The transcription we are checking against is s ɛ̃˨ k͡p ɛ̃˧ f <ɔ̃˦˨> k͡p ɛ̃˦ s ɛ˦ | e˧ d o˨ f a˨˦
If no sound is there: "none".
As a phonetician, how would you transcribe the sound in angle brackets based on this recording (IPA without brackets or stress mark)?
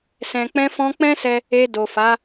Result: ɔ̃˧